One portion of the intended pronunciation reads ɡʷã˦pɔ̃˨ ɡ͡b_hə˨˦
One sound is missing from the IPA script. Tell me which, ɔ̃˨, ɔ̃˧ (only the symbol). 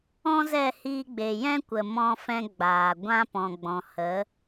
ɔ̃˨